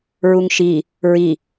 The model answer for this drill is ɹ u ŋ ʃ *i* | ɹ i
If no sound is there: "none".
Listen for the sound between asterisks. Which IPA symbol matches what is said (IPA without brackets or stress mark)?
i